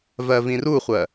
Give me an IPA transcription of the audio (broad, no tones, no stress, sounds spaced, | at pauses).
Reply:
v ɜ v ĩ r u χʷ ɜ